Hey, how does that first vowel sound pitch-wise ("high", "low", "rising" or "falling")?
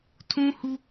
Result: high